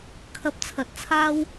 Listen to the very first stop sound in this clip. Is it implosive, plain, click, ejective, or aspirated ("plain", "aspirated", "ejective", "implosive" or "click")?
aspirated